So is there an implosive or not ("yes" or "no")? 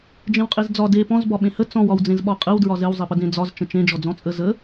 yes